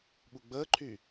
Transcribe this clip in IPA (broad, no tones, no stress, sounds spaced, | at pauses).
ɓ u ɡ͡b əː ǃʰ y